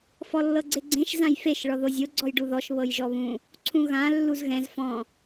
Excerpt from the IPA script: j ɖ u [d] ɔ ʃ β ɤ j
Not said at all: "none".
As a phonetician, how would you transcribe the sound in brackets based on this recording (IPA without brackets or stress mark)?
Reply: ð